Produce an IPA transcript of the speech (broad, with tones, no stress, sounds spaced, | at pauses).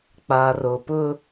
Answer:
k͡p a˨ r o˨ p ʊ˦